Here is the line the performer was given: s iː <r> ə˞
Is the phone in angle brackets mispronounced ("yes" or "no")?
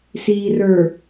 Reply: no